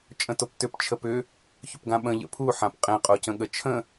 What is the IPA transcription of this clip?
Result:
t͡ʃʼə̃toptʏp t͡ʃʰəpʏ | çʏpɡãɓə̃ ʎə̰pʰu ħãpqʼẽ qʼocə̃ɠət͡ʃʰə̃

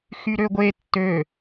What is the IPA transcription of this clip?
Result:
xyɾøɡʷe tːø

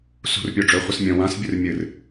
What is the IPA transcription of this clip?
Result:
sṳr pʲoɖ͡ʐɵ χʷɨsmʲɐ̃ wãs bʲɨrmʲɨr

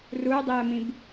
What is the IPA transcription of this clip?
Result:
ruɪ̯dˤiə̯mĩb

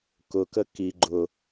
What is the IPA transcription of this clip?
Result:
kʊkə ki ɡ͡ǃʊ

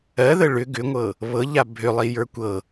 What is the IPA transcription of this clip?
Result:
ɜðə ɭʏ ɡʏŋʷɤ | βɤʎa bʱʏlˠi jə˞kʷɤ

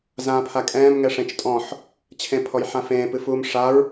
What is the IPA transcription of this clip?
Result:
zãːpʰakʼɛ̃ːm ŋɛʂẽt͡ʃtʼɔ̃ħ | t͡ɕʰẽpʰɔjħãfẽː pɨfuːmʂaɹ

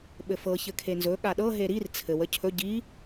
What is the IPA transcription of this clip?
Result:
ɓɘfɤ çɘkʰenzɵ ɠaɗɤɦe ɾir t͡sʰɘw əcʰɵ ɟi

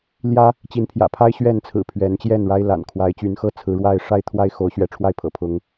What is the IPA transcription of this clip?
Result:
ljä˦ | t͡ɕi˨˦npʰjä̰˨˩pʰa˦ɪ̯ ɕɥɛ˥˨nt͡sʰɹ̩˨˩ pʰɥɛ˨˦nt͡ɕjɛ˥˨n ɻa˦ɪ̯ la̰˨˩n kʰwa˨˦ɪ̯t͡ɕy˨˦nxɤ˦ t͡sʰɹ̩˨˦ɻwa˥˨ɪ̯ ʂa˥˨ɪ̯ t̪ʰwa˦ɪ̯ xo˨˦ʊ̯ɕɥɛ˨˦ʈ͡ʂʰwa˥˨ɪ̯pʰɤ̰˨˩ pʰʊ˨˦ŋ

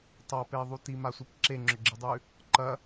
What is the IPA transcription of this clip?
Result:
tˤapeðˤu timasʷip ǁeŋ͡ǁɵɡ͡ǁɨdˤʉ | ǃɐ

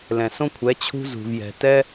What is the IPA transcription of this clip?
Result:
lɛ̃˩sõ˥kʷʰɛ˩˥ t͡ɕʰṳ˥zṳ˩vjɛ̤˩ tɛ˥

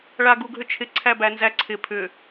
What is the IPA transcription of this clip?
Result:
ɭaɡuɡʱʏt͡ʃʰɪ ǀʰæbænzæǀʰɪ pʰʏ

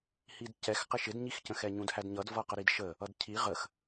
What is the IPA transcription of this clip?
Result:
hidcɛx qɪʃɪdɲixcə̃ xɛɲũdhædɲʌd vʌqəɾidʃə | ʌdcʰi ʁəx

